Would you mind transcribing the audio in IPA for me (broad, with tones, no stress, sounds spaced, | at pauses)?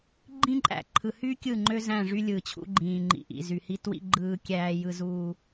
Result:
ɡ͡ǃ ĩ˦ ǃʼ æ̰˨ ǃʰ ɯ˨ h y˦ kʲ ɯ˦˨ ŋ͡ǃ ø˦ z æ̃˦˨ ʐ y˦ lʲ ɯː˨ t͡ɕʰ ṵ˦ ɡ͡ǃ ĩː˨ ŋ͡ǃ ḭ˨ ʔ ḭ˨ z y˨ h i˦ t w ḭ˦ ɡ͡ǃ ɯː˦ kʲ æː˦ j ɯ˦ z uː˦